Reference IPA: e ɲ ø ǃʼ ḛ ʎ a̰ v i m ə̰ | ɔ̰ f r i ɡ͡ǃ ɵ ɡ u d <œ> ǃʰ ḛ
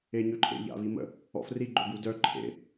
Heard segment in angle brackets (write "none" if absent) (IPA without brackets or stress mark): œ